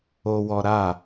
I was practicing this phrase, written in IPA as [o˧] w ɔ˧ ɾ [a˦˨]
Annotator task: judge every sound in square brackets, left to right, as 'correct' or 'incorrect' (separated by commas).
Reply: correct, correct